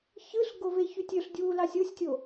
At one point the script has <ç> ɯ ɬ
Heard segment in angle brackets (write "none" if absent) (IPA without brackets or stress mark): ç